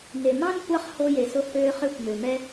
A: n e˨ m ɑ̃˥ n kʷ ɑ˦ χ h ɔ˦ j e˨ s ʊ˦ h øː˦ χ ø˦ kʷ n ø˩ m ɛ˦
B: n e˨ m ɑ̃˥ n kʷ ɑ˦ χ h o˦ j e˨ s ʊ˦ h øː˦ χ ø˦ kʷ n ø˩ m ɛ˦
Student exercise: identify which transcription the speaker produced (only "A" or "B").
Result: B